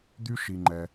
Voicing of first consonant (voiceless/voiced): voiced